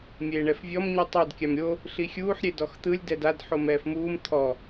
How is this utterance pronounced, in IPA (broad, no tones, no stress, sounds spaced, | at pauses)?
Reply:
mʲ eː ɳ ɛ f vʲ ɔ m ɲ i tˤ o d kʲ a m ɾʲ o | ɬ i xʲ uː ħ ɾʲ e d ɔ x t̪ ɯ lʲ d ɛ d a d ħ o m ɛː f m uː m t̪ʰ ɔ